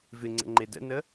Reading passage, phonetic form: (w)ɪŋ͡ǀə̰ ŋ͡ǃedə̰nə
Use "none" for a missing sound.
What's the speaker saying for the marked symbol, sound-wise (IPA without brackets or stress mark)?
v